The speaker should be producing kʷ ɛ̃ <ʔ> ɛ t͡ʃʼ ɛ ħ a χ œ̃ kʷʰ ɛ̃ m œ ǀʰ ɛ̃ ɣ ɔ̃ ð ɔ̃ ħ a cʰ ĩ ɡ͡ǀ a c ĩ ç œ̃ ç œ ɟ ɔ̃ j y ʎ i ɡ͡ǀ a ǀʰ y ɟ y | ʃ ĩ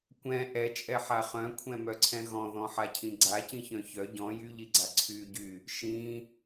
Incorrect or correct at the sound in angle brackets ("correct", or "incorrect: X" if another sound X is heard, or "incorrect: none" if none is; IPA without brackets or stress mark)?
correct